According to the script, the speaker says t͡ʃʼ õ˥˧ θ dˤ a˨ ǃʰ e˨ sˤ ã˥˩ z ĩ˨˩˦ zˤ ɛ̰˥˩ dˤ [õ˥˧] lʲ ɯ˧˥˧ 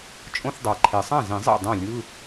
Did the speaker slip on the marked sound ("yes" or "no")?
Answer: yes